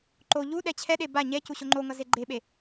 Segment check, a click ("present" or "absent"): present